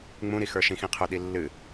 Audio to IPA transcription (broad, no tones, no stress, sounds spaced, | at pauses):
ŋ͡m ũ ɾ i x ə˞ ʃ ĩ x ĩ qʰ ɵ ɗ i lː ɨ